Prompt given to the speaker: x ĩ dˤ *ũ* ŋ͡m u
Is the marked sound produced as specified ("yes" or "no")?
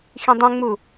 yes